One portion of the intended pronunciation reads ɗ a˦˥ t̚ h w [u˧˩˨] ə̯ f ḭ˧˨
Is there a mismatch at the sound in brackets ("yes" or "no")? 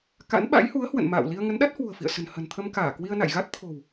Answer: yes